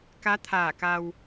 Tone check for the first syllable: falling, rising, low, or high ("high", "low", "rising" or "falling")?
rising